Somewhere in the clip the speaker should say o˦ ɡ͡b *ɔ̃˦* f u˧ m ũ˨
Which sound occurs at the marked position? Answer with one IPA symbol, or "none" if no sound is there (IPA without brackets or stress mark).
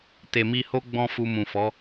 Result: ɔ̃˦